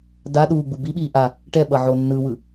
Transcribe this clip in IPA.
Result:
d a ɗ uː ɡ͡b u b i ɓ iː ʔ a | ʈ ɛ ɓ ʌ ʕ o nː ɯ w ɯ

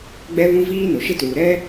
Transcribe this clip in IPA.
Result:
ɡ͡b ɛ˦ β ũ˦ v iː˦ n ʊ˨ ʃ ɪ˦ t uː˨ ɾ ɛ˦

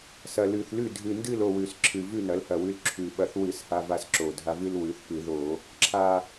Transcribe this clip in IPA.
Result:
s ɐ˨˩ l ʉ˨˩ θ l ʉ˥˨ dʱ ɨ˨˩ n d ɨ˥˨ l o˥˨ w ʉ˨˩ s ǁʰ ɨ˨˩ v ʉ˥˨ n ɐ˩˥ l h ɐ˨˩ w ʉ˧ l ǁʰ ʉ˨˩ ɓ ɐ˧˩˧ θ w ɨ˧˩˧ s h a˧ v a˧ s ǁ o˨˩ dʱ a˧ v ɨ˧ l w ʉ˩˥ θ p ɨ˧˩˧ ð o˧˩˧ | ǁʰ a˨˩

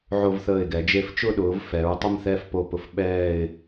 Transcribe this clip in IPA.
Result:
ʕ o˧ v θ əː˧˩ ɪ̯ ɡ ɛ˩˧ d͡ʒ e˧ f t͡ʃ ʊ˥˧ ɗ ʊː˩˧ v f ɛ˩˧ ɹ tˤ ə˥˧ m θ ɛ˥˧ f p o˧˩ p ʊ˧ f ɓ ɛː˥˧ ɪ̯

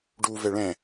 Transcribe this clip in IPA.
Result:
ɖ u v ɛ ɭ ɛ̃

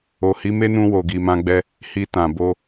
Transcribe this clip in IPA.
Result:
o˨ h i˨˦ m e˦ n ũ˧ w o˨ ɡ i˨ m ã˧ ɡ͡b ɛ˦ | h i˧ t ã˨ b o˧

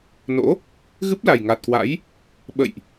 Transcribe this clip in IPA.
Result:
n o̰˧˥ | ɣ ɨ˦˥ p̚ l a˨˩ j ŋ a˨˩ t̚ k w a̰˧˥ j | ɓ ə̰˧˨ j ʔ

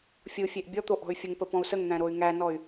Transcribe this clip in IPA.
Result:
fʲ ɯ fʲ e ʔ bʲ ɔ t̪ o ʔ ɔ̤ y̯ fʲ ə ŋ p ə p ɔ̃ u̯ s ə ŋ n̪ æ̃ ɾ o y̯ ŋ æ n ɔ y̯

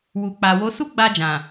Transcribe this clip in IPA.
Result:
w u˨ k͡p a˨ w o˨˦ s u˦ ɡ͡b a˧ d͡ʒ ã˨

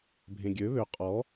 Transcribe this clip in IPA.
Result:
bʱ ẽ ɡʲ ø β ø qʼ ɔ

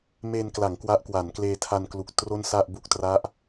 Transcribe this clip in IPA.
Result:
m e˧ n k l a˩˦ ŋ k w a˦˥ ʔ k w a˩˦ n k l eː˧ tʰ a˧ n k l u˨˩ k̚ t r o˥˩ n s a˥˩ ʔ b u˦˥ k̚ t r a˦˥ ʔ

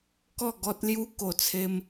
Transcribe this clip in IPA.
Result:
k ɔ˥˧ ɡ ɔ˦ t̚ l j u˦ k o˨˩ t͡sʰ e˧ m

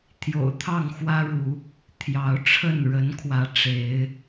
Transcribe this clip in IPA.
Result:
t̪ʰ j o̰˨˩ ʊ̯ t̪ʰ ɑ˥˨ ŋ x w ä˦ ɻ u˨˦ | t̪ʰ j ɑ˨˦ ʊ̯ ʈ͡ʂʰ ə˥˨ n ɻ ə˨˦ n kʰ w ä˨˦ ʈ͡ʂ e˨˦ ɪ̯

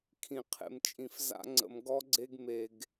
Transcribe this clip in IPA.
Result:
kʰ ĩ˨ qʰ ḛ˨ m t͡ʃʼ ĩ˨ f z a̰˦ ŋ͡ǀ ə̰˨ m ɡ ɔ˦ ɡ͡ǀ e˦ ɡ m e˨ ɡ

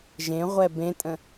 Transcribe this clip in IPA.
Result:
ʒ ẽ ʁʷ ɛ b ẽ tʼ ə̃

